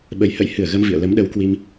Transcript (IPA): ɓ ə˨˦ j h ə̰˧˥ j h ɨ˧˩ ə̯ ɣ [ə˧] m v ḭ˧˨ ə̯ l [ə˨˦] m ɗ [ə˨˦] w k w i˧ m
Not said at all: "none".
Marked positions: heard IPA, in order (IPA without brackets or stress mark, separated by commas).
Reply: ə˧, ə˨˦, ə˨˦